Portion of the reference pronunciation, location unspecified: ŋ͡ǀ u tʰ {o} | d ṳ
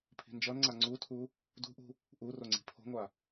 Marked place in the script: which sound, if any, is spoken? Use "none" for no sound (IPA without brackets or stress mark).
u